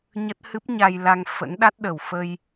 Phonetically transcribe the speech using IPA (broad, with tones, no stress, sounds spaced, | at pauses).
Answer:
ɲ ə˦˥ t̚ h ɨ˦˥ p̚ ɲ a˧ j l a˧ ŋ f ə̰˧˥ n ɗ a˦˥ t̚ ɗ ə˨˩ w f ə˧ j